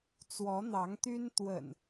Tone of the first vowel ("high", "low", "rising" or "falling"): rising